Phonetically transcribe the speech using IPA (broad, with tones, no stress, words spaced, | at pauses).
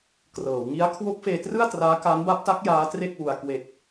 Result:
krɤː˩˦wŋi˦˥a̯ kʰwo˦˥k̚feː˧trɯ˥˩a̯ traː˦˥ka˦˥n ba˦˥p̚ta˦˥k̚ jaː˦˥tre˥˩k̚wu˧a̯ kwe˨˩k̚